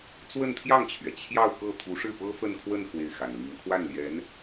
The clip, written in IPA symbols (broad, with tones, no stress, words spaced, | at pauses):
t͡swə˥˧nt̪ʰjɑ˥˩ŋt͡ɕʰɥɛ˩ t͡ɕʰjɑ˥˧ʊ̯kɤ˥˩ t̪ʰu˧˥ʂɻ̩˥˩pɤ˥ fə˥˧nkʰwə˥˧n xwe˥˩ɪ̯xa˨˩nli˧˥ŋ kʰwa˥˩nljɛ˧˥n